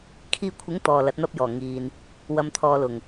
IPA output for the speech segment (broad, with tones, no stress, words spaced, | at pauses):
kʰiː˧kʷʰɪ˨˥ŋ t̪ɔː˨lɐ˨˥t̚n̪ɐ˥p̚jɔː˨˩ ŋiː˨n | wɐ˨˧mt̪ʰɔː˨˧ lʊ˨˩ŋ